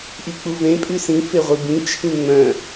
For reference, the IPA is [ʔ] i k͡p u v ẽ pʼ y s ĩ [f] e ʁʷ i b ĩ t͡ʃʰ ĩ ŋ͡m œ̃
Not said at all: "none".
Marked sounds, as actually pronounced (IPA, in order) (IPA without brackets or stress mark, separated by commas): ʔ, f